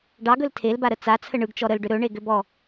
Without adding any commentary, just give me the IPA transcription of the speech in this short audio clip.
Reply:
ɖɑɡɵl tʰelbaɾə t͡sat͡sʰə ɳɯɡt͡ʃɔ ɾəlɖʏ ɾɵɳeɡʏbɔ

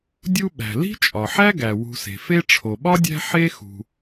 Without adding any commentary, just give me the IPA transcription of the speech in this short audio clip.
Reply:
dʲu˥ɓæ̤˩ li̤˥t͡ʃʼɒ˩ħæ˥ɡæ˩ wṳ˨se̤˩ fe˦ʈ͡ʂʰo˩ɓɒ˥dʲæ̤˦ ħe˥xṳ˩

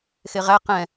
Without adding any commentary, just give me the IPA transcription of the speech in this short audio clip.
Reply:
xeʁæ qɛ̃

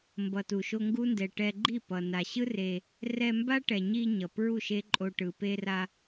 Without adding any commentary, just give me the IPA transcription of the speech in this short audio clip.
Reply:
mbʌ˨tu˨ʃo˧ ŋɡu˦ndɛ˨ ʈɛ˧ɡ͡ǃi˦˨ pʌ˨na˨ ɕɯ˦ re˧ | rɛ˧mba˦ʈɛ˨ɲi˧ ɲʌ˨pɹu˦˨ʃe˦ǃʼo˧ ʈɯ˨pe˧ra˧

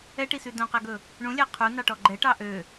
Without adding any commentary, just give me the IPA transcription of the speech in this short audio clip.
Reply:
ɛʈisʉ dõqæɡɵ | ɳũlʲæ qʰunɑʈɔ ɡ͡ǃɛʈɑ ʔø

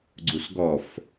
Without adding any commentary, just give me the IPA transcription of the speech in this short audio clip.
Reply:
ɡ͡ǀusɡɔf

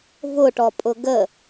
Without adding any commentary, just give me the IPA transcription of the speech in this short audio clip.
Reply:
vʊʈɔpʼʊ ɡə

